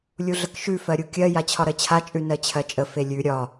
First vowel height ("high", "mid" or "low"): high